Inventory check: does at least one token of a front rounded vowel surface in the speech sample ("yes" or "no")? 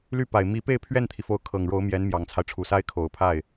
yes